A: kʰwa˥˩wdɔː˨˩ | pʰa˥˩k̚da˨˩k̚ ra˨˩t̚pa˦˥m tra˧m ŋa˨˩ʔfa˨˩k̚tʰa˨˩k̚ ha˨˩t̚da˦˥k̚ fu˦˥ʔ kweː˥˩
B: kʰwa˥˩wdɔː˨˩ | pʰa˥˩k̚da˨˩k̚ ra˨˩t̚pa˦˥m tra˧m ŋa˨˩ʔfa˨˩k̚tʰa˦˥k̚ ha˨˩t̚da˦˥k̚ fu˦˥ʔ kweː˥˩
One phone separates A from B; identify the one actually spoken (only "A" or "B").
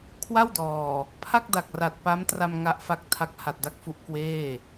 A